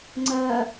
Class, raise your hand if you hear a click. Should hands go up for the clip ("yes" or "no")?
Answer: yes